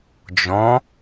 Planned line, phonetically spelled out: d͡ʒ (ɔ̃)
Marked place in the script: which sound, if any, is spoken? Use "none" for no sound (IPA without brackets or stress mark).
ɔ̃